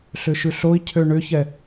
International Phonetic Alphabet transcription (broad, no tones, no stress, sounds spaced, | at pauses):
ɬ ʏ ʃ ʉ ɬ o i̯ cʰ ø ɳ ʏ ç ɛ